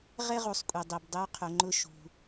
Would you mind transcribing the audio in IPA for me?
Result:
ʁ ɛ˥ ʁ u˩˧ sˤ kʷʼ i˩ dˤ i˩ b dˤ ɪ˧˥ u̯ qʰ ʊ˩˧ ŋ͡ǃ ʊ˧ ʃ ṳ˩

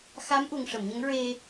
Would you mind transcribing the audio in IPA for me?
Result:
x a˧˥ m ʔ u˨˩ ŋ ʂ ə˨˩˨ m ɲ ə˧˥ ŋ ɹ e˧

